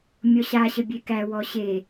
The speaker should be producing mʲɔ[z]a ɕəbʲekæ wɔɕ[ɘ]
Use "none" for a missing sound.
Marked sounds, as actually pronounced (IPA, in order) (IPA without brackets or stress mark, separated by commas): ɕ, e